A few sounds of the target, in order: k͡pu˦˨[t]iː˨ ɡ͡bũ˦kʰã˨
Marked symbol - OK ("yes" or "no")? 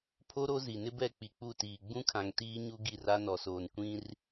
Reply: yes